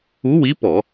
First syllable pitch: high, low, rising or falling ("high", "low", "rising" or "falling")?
rising